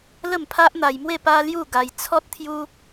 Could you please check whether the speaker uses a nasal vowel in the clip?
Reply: no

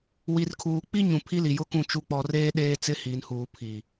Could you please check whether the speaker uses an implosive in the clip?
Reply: yes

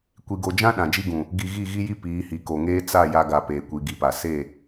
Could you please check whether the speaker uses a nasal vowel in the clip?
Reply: yes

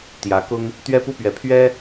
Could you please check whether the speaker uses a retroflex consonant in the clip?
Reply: no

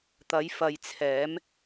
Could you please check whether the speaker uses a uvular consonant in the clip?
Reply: no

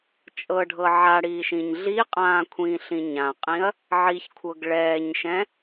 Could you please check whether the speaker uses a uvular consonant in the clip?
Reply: yes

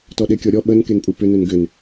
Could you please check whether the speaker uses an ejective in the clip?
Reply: yes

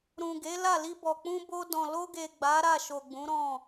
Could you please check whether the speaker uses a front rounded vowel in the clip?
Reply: no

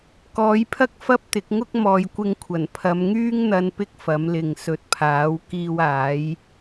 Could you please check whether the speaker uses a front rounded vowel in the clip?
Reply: yes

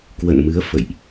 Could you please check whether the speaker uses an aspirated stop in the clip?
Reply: no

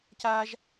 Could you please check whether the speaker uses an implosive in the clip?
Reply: no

